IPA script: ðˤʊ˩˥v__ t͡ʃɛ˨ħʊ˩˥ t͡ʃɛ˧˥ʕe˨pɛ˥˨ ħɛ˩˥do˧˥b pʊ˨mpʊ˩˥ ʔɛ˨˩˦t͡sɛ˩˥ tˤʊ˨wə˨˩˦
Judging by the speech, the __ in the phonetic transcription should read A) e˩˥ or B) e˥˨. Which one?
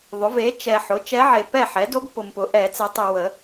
A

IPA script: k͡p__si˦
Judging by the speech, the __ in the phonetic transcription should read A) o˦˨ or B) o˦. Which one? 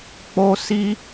B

